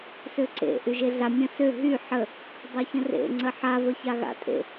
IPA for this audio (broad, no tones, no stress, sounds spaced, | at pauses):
s ø ǀ ḛ ʔ y ʒ e ɮ a mʲ ə̃ s ø ɦ y ħ ə | dˤ e ç ə̃ r ḛ ŋ͡ǀ ə ħ a v ə ç a ɣ a̰ tʼ ḛ